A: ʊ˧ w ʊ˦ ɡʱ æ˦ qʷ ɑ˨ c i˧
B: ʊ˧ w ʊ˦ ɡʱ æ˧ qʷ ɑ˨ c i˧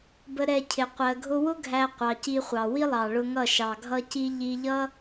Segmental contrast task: B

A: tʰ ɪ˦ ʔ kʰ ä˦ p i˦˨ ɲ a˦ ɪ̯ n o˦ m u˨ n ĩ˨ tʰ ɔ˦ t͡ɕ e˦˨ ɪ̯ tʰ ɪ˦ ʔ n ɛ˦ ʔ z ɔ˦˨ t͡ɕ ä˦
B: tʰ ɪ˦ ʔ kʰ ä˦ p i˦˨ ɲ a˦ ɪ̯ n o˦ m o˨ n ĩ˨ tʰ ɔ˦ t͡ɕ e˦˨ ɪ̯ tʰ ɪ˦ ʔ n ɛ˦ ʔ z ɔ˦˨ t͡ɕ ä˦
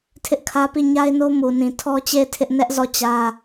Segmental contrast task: A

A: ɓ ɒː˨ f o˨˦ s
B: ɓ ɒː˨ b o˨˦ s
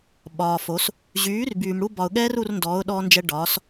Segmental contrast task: A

